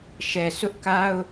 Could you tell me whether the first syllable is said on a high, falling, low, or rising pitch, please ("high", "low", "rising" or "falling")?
low